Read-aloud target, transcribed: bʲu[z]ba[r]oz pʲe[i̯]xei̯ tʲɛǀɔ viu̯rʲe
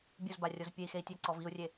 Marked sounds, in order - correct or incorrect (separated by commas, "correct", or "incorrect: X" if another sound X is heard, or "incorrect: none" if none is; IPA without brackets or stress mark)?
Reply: correct, incorrect: rʲ, correct